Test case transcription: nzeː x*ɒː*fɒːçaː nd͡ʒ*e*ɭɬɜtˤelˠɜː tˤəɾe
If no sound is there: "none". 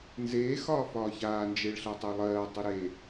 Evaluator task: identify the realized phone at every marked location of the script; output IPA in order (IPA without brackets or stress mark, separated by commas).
ɒː, e